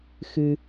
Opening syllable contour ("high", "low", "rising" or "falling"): high